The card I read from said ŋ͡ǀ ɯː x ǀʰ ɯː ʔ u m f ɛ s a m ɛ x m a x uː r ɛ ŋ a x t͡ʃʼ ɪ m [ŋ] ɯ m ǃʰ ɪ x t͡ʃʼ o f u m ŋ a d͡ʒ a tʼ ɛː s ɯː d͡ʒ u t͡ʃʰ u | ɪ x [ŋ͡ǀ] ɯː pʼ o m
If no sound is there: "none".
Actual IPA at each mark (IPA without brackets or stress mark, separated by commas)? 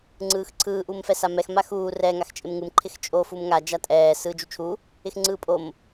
ŋ, ŋ͡ǀ